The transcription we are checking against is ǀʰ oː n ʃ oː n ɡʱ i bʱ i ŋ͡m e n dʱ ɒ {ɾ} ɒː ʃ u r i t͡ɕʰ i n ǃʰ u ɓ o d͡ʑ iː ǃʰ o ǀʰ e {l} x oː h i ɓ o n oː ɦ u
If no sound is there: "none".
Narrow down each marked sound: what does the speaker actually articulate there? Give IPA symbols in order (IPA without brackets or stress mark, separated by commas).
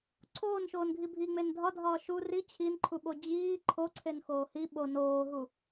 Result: dʱ, n